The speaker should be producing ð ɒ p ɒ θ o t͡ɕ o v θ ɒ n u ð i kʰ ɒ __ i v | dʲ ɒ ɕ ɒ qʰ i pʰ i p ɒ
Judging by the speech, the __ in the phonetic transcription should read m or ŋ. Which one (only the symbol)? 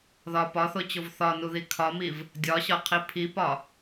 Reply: m